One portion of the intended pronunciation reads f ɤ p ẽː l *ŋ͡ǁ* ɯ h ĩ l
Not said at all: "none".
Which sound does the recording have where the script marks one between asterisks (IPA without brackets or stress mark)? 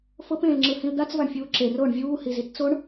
ŋ͡ǁ